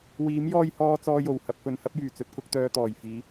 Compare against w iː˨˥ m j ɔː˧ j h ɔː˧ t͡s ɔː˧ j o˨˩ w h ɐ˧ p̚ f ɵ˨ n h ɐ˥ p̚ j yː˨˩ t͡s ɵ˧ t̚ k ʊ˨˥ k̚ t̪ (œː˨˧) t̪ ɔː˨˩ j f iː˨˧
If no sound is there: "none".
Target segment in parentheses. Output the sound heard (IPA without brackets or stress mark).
œː˧